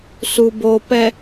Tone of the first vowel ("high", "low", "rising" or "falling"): low